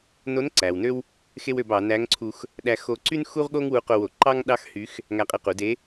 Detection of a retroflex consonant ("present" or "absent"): absent